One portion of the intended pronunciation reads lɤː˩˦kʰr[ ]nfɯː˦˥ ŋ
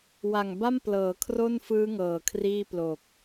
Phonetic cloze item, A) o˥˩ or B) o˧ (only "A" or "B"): A